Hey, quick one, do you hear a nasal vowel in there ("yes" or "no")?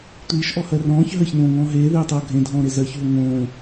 yes